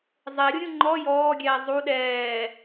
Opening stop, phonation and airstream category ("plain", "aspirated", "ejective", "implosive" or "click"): click